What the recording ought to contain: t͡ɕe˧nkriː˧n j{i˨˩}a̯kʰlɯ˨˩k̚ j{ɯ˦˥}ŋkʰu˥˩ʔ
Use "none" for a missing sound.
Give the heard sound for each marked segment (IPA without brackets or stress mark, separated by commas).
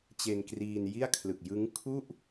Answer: i˥˩, ɯ˦˥